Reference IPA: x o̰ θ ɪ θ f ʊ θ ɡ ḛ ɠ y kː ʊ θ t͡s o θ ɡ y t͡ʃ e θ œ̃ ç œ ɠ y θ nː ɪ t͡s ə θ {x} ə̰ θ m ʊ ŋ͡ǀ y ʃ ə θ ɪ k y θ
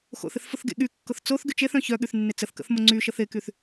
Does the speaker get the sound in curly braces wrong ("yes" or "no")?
yes